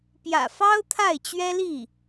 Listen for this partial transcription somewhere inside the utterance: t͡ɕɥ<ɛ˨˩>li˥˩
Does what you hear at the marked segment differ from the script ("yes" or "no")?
yes